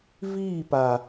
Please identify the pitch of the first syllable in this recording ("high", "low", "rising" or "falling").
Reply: falling